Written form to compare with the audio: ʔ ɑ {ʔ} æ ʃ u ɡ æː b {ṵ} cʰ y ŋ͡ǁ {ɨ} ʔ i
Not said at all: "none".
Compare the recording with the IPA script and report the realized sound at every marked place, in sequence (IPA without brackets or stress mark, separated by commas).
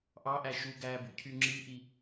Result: ʔ, ṵ, i